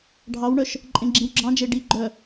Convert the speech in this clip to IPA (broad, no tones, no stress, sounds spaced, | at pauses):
ɖʱ ɑ w ɳ œ ʃ | ǃʼ ẽ ɡ͡ǁ ĩ w ɡ͡ǁ ɑ̃ d͡ʒ e ɖ i ɡ͡ǃ œ